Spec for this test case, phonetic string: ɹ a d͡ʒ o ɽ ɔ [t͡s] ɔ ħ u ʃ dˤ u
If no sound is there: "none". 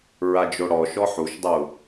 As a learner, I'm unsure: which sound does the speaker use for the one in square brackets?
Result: ʃ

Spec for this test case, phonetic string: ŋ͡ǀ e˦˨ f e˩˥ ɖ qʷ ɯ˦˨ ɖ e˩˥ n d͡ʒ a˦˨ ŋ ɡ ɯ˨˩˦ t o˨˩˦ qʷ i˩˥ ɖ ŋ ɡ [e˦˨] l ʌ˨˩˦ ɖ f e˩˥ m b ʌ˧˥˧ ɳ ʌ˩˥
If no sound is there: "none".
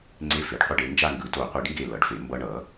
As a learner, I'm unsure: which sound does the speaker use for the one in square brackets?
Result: e˦˨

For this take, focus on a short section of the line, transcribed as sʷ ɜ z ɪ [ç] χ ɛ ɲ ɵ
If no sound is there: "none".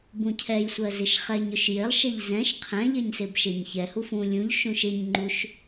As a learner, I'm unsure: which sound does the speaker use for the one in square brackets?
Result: ʃ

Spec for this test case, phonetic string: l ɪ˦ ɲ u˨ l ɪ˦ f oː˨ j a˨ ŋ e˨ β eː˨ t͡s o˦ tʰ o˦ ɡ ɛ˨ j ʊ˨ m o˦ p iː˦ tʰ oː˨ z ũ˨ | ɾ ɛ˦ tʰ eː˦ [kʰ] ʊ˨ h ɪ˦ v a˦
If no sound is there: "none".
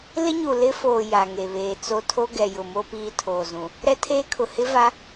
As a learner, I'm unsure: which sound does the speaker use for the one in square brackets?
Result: kʰ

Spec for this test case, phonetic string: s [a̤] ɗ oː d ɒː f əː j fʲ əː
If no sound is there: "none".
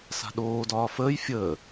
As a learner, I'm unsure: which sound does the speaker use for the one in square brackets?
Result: a̤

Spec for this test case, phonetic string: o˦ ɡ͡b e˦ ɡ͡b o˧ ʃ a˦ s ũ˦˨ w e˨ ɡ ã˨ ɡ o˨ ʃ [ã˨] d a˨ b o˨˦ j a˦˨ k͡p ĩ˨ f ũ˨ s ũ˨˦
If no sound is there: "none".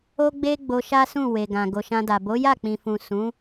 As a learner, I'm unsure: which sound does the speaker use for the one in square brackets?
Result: ã˧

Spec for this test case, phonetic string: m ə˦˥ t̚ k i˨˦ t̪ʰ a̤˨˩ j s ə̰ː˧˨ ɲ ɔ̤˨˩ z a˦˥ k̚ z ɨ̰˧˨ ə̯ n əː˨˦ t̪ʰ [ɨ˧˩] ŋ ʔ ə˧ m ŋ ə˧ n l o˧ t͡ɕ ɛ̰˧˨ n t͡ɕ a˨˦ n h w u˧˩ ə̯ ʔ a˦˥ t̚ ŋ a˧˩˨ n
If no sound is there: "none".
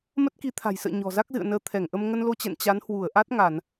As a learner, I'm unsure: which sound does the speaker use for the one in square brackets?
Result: ɛ˧˩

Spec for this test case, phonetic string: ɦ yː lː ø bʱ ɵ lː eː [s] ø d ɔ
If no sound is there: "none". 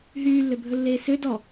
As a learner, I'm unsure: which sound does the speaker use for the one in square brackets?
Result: s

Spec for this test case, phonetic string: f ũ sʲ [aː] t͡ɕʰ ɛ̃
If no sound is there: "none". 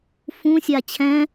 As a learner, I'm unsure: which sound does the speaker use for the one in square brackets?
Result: a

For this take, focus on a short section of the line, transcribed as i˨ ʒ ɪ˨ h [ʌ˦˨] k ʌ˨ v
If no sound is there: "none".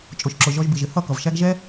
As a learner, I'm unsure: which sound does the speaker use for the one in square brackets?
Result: ʌ˦˨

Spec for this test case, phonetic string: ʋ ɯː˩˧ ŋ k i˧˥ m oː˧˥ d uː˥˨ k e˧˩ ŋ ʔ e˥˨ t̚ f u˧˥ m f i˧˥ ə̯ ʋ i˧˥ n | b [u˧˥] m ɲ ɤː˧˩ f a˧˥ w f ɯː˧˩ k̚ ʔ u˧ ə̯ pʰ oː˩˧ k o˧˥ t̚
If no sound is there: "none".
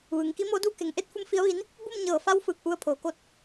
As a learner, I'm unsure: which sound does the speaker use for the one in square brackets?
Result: u˥˨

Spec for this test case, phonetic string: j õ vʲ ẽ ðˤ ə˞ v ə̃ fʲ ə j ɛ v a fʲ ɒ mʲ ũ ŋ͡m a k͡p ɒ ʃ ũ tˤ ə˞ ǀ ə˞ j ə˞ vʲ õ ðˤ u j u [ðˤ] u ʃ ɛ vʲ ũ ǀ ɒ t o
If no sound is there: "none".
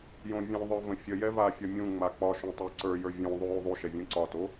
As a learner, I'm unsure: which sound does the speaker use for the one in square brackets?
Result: ðˤ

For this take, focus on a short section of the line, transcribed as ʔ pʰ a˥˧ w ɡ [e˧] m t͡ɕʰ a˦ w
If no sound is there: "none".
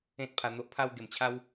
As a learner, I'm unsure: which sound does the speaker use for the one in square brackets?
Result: e˨˩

